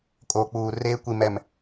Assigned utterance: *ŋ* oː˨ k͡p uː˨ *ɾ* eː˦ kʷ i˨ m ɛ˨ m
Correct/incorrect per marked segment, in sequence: incorrect: kʼ, incorrect: r

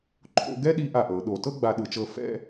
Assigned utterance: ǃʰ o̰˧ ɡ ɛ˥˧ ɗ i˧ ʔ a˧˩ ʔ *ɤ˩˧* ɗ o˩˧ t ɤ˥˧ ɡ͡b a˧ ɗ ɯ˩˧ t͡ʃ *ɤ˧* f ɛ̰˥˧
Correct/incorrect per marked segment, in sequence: correct, correct

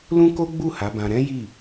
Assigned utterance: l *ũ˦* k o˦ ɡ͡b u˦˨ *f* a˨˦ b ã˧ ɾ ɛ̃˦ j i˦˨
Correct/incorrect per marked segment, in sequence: correct, incorrect: h

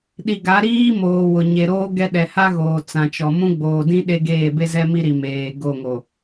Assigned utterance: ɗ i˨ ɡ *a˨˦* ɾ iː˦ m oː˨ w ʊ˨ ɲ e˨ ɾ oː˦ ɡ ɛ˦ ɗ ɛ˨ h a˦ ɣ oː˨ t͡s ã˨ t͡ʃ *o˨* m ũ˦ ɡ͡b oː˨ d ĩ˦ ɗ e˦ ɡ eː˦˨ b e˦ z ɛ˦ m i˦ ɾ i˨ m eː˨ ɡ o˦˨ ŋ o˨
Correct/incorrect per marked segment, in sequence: correct, incorrect: ɔ˨

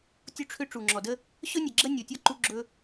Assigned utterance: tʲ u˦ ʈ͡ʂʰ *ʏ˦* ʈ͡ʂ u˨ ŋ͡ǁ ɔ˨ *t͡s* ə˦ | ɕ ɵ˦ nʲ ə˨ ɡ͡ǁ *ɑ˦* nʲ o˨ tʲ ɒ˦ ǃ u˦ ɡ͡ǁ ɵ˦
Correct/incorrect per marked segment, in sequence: correct, incorrect: d, incorrect: ə˦

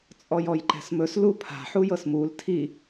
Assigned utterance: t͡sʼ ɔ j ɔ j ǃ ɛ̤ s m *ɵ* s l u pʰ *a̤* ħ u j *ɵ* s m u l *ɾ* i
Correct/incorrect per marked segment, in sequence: correct, correct, incorrect: ɤ, incorrect: tʰ

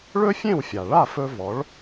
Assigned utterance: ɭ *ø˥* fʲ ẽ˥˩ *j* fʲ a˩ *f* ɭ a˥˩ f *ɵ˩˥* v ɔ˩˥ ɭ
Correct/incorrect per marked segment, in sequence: incorrect: ɵ˥, incorrect: w, incorrect: none, incorrect: ɵ˧

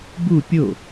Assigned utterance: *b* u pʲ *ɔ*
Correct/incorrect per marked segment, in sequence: correct, incorrect: o

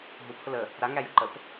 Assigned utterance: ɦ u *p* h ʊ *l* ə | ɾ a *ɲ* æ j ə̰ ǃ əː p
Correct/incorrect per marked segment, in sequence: correct, correct, incorrect: ŋ

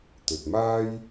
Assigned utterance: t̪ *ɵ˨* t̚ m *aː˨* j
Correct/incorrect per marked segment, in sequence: correct, incorrect: aː˥

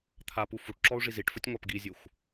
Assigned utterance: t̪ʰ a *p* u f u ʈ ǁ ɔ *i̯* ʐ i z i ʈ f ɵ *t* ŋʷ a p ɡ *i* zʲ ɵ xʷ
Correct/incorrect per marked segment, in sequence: correct, incorrect: u̯, incorrect: tʲ, correct

